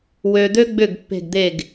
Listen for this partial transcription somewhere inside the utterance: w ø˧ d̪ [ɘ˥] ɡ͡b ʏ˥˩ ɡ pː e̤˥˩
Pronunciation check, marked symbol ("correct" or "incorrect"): incorrect